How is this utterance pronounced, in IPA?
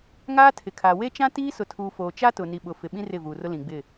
ŋ aː˦ tʰ ɪ˨ kʰ a˨ w e˦ t͡ʃ ã˦ t iː˦ s ʊ˨ tʰ uː˨ f oː˨ t͡ʃ a˦ t ʊ˨ n i˨ ɓ ʊ˨ f ɪ˨ ɓ ĩ˦ r ɪ˦˨ v uː˨ r ʊ˦ l ĩ˨ ɡ͡b ɪ˦˨

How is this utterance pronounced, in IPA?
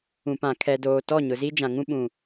ũ˨ p ã˨ kʰ ɛ˨ d oː˨ t ɔ˦˨ ɲ ʊ˨ z i˦ d͡ʒ ã˨ ŋ ũ˦ ɓ ũ˨

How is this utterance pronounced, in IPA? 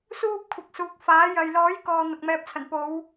s uː˥ p̚ kʷʰ ɐ˨ k̚ s uː˨˥ k̚ f aː˨˥ j ɐ˨ j l ɔː˨˥ j k ɔː˧ n̪ ɐ˨ k̚ m ɛː˧ p̚ t͡sʰ ɐ˨˩ n p o˨˧ w

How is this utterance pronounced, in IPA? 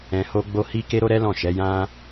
ɛ̃˧ h o˦ ɡ͡b o˦ h i˦ k e˦ ɾ o˦ ɾ ɛ˦ l ɔ̃˦˨ ʃ ɛ˨˦ j ã˦

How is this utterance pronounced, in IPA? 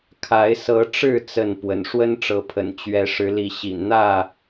kʰ a˨˦ ɪ̯ s ɤ˨˦ ʈ͡ʂ ɻ̩˥˨ t͡s ə˥˨ n p w ə̰˨˩ n ʂ w ə˦ n ʈ͡ʂ ɤ˨˦ pʰ ə̰˨˩ n t͡ɕ ɥ ɛ˨˦ ʂ ɻ̩˨˦ l i˨˦ ɕ ḭ˨˩ n n̪ ä˥˨

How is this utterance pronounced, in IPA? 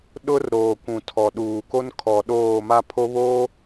ɗ ʊ˦ r ɾ oː˨ kʷ ũ˨ tʰ ɔ˨ ɗ uː˨ k o˦ n kʰ ɔ˨ ɗ oː˦˨ m a˦ pʰ o˦ β oː˦

